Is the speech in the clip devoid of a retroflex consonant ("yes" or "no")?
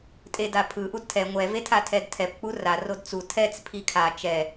yes